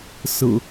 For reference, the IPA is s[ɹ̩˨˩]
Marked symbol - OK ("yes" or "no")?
yes